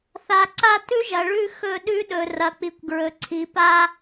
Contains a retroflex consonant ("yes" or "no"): yes